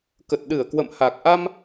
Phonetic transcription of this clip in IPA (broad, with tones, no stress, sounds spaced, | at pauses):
k ə˨˩ t̚ ɗ ɨ˧˩ ə̯ k w ə̰˧˨ m h a˨˩ k̚ ʔ a˧ m